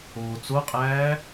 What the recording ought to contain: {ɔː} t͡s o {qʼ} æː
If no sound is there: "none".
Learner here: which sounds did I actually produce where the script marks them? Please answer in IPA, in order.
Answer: oː, qʼ

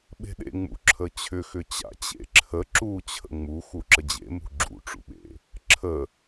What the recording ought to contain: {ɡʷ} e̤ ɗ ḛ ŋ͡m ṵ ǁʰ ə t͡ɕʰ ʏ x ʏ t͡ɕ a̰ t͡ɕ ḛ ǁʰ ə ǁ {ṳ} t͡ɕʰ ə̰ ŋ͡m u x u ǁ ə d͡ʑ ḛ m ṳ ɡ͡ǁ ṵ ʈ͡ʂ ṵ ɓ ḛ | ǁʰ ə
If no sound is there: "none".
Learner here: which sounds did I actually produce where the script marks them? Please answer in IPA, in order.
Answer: ɓ, u

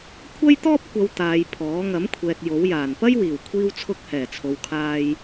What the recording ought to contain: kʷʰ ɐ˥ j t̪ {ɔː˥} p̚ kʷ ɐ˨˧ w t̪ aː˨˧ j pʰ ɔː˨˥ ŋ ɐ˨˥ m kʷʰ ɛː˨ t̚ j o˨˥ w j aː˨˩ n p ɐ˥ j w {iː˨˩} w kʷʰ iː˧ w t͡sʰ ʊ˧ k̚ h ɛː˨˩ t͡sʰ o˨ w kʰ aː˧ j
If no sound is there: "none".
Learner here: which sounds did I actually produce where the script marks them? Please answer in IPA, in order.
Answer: ɔː˥, iː˨˩

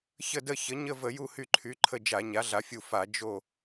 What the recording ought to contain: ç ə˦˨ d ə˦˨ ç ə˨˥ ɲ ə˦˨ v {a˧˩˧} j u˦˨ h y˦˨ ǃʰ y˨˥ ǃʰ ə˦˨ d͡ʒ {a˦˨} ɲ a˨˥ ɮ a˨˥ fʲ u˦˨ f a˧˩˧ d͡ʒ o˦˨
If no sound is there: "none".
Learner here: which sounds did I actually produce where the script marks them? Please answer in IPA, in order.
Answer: ə˧˩˧, a˧˩˧

